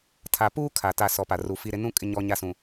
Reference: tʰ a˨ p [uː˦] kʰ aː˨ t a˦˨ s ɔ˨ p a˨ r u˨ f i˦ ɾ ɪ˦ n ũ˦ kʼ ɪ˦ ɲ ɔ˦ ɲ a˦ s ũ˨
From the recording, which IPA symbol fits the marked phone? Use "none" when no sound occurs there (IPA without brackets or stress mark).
uː˦